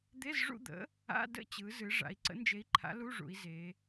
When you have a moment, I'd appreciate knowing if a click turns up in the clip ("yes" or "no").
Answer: yes